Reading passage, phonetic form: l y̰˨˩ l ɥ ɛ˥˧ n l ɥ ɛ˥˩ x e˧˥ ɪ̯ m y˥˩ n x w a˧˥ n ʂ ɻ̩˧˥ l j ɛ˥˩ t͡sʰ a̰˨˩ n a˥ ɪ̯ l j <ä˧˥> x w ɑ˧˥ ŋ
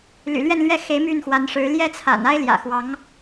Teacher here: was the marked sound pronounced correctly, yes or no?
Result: no